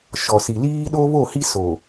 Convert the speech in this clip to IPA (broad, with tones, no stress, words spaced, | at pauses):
ʃɔ˨si˨liː˦ ɗo˦βo˦˨hi˦ so˨